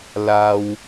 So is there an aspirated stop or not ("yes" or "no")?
no